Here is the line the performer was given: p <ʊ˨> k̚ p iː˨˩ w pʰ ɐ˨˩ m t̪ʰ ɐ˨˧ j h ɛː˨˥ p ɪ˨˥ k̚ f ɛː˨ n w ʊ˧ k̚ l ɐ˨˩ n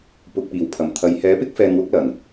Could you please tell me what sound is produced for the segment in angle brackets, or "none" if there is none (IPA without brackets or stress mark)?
ʊ˨